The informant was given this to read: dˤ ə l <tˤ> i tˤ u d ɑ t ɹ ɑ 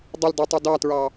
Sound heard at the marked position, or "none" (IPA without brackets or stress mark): d